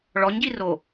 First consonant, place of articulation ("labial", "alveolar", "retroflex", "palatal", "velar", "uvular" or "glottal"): retroflex